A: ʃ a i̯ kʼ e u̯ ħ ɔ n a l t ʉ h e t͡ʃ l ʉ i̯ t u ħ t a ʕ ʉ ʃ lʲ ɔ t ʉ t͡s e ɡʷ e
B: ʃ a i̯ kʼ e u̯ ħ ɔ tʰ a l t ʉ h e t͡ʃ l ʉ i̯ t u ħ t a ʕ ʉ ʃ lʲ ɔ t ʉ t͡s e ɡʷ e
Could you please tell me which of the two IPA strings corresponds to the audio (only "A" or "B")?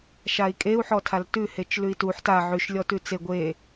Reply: B